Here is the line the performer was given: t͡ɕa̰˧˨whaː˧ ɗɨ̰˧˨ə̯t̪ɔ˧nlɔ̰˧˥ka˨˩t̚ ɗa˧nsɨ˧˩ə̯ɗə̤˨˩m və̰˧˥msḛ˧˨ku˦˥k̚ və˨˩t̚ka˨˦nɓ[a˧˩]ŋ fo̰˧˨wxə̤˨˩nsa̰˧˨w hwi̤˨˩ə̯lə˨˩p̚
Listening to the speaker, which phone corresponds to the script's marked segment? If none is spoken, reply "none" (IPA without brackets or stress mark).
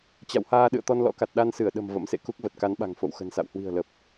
a̤˨˩